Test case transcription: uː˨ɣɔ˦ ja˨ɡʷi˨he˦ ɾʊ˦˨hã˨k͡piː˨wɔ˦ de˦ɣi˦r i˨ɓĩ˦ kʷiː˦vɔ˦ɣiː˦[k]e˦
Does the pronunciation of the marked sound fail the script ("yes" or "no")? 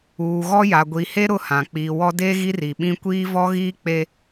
yes